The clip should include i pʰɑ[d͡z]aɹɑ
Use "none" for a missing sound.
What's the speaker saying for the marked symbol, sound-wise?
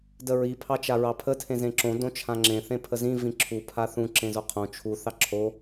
t͡ʃ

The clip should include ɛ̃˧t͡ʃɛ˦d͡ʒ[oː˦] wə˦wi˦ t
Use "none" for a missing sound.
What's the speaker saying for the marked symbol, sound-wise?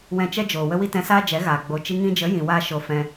oː˨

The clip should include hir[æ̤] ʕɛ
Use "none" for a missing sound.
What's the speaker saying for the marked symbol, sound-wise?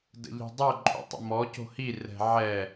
ɛ̤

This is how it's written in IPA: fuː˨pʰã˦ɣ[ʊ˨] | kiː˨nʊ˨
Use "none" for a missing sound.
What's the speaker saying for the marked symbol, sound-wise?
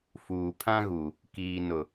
u˨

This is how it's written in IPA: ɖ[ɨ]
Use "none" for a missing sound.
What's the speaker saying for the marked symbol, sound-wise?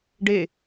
e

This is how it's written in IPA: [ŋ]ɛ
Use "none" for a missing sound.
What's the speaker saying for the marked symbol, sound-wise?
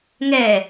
ŋ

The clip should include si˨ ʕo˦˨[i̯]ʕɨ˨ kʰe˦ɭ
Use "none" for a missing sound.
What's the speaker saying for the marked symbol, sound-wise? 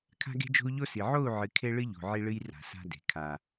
u̯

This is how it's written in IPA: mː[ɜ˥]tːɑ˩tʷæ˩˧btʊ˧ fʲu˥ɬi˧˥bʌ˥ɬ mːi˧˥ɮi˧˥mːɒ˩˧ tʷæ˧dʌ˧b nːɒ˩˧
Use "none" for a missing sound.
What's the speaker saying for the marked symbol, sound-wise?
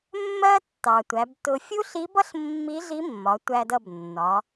ɜ˥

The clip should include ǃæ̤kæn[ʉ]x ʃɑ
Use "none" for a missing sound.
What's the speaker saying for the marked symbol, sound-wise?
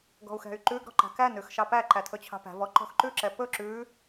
ʉ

